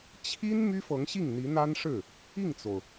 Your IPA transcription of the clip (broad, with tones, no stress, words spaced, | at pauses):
t͡ɕʰi˥n my˥fɤ˧˥ŋɕi˥˩ŋ n̪i˧˥n̪a˥nʂɻ̩˥˩ | i˥˩ŋt͡so˩ʊ̯